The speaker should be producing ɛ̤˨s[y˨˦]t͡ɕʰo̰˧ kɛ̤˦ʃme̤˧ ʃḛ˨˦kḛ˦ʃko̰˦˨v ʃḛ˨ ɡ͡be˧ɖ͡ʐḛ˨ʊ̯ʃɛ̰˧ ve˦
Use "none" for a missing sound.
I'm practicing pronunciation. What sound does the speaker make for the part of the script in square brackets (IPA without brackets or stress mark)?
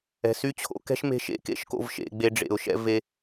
y˦